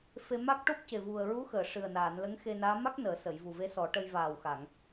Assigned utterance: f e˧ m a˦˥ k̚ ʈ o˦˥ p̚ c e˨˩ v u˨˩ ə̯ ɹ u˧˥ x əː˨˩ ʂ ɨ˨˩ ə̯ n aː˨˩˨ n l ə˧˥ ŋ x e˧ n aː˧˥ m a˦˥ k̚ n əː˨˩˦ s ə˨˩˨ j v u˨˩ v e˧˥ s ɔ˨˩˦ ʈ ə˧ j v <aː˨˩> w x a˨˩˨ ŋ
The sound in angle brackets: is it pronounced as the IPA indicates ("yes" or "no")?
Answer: yes